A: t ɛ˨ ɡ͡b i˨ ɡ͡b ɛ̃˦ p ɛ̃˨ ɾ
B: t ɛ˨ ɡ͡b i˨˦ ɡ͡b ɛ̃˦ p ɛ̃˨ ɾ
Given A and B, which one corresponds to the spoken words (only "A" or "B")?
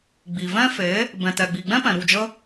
A